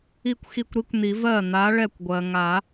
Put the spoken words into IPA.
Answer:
i˥˩ kʷ x i˥˩ kʷ ɾ i˦˥ kʷ n̪ i˨˩˦ v ɜ˥˩ n̪ a˨˥ ɭ ɛ˥˩ kʷ ɡʷ ɜ˩ ŋ a˨˩˦

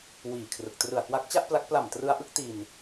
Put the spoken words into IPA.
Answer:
w iː˨˩ kʰ r ɯ˨˩ k̚ t r ɯ˨˩ a̯ k w a˦˥ k̚ t͡ɕ a˥˩ ʔ p l a˦˥ k̚ p l a˨˩ m t r ɯ˧ a̯ ʔ ɯ˥˩ k̚ t i˧ n

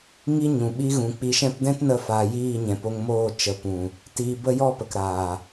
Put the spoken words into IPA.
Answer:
ŋ i˦ ɲ ũ˨ ɓ i˧ ɣ ũ˨ k͡p i˧ ʃ ɛ̃˦ p d ɛ̃˦ t n ə˧ f aː˨ j iː˦˨ ɲ ɛ̃˨ p o˧ ŋ m oː˦˨ t͡ʃ ə˨ p ũ˨ | t iː˧ b ə˦ j ɔ˦ p ə˨ k ɾ aː˨

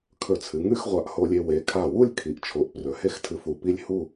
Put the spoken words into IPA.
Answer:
kʰ ɵ˧˩ t͡sʰ ɨ˩˧ ŋ ʉ˥˧ x ʁʷ a˧˩ ʔ h o˧ lʲ e˧ w e˩˧ kʰ a˧˩ w u˥˧ lʲ kʰ i˩˧ ʔ t͡ʃʰ o˩˧ ʔ p r ɵ˩˧ h e˥˧ x tʰ ɨ˧ f u˧˩ p i˥ lʲ h u˥˧

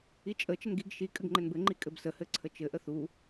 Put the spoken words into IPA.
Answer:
i t͡ʃʼ ə t͡ʃ ə n ɡ i ɡ ʃ i kʼ ɘ ɡ ŋ͡ǃ ɘ n b ɘ ŋ͡ǃ i kʼ ɘ b s ə h ɘ ǀʰ ə t͡ʃ ɘ ʔ ə θ u

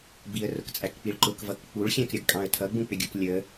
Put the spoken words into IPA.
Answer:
b i ə̯ r ʊ k t͡sʼ æ k k͡p i ɭ ǃ ʊ k v ʌ k k͡p u ɭ xʲ æ̃ k ɾʲ ʌ ɡ kʼ ɑ̃ ə̯ tʰ ʌ ɡ͡b ũ k͡p ɪ ɡʲ u k lʲ ə

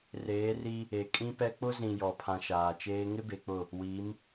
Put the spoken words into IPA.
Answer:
r eː˨˦ r i˦ | e˨ kʼ ĩ˦ p ɛ˦ k͡p ʊ˦ z ĩ˨ j ɔ˨ pʰ ã˨ ʃ aː˨ t͡ʃ eː˦ ŋ ɪ˦ b e˨ k͡p ʊ˦˨ | w i˨˦ m

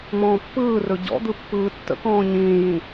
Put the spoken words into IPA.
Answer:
m ɔ̃ː pː ɯː r ɵ ɟ ɔ̰ d̪ ɯ pː ɯː tː ə̰ k ɔ̃ː ɲ ĩː j ĩ

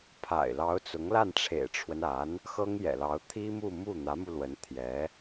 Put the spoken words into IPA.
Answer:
pʰ a̰˨˩ ɪ̯ l ɑ˧˥ ʊ̯ t͡s ʊ˧˥ ŋ l a˥˩ n ʈ͡ʂʰ ḛ˨˩ ɪ̯ ʈ͡ʂʰ w ə˦ n a˧˥ n | x ɤ˥ ŋ j ɛ̰˨˩ l ɑ˧˥ ʊ̯ t̪ʰ i˥ m u˥˧ m u˥˩ n̪ ä˧˥ m u˧ l w ə˧˥ n t̪ʰ j ɛ˧˥

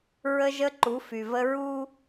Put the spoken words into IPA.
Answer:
ɹ ə˦ ʒ ə˦ ǃ u˨˦ f y˨ v ə˦ ɹ u˦

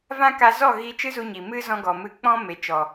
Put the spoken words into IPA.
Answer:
v ã˦ k a˧ z ɔ˦˨ ɣ i˦ t͡ʃ ɨ˦ z u˧ ɲ i˨ m ɨ˧ z ɔ̃˧ ɡ ɔ˨ m ɨ˧ k͡p ɔ̃˦ m e˨ t͡ʃ ɔ˨

